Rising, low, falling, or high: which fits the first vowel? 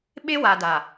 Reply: high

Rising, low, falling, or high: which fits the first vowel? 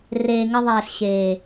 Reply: low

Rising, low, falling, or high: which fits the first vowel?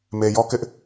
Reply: low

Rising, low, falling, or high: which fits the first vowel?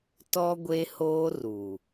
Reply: high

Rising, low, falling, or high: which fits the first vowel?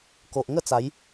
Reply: low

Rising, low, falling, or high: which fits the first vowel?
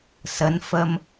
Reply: rising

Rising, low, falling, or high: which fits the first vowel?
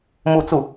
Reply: falling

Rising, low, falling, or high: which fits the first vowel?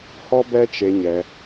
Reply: high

